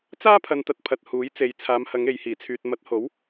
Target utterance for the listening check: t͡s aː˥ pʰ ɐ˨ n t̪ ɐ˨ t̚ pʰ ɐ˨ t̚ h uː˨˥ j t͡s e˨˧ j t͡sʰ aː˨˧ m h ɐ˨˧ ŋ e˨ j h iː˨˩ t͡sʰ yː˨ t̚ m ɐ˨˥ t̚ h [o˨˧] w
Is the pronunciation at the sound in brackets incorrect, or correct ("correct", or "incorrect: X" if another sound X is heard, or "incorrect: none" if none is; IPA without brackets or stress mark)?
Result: incorrect: o˨˥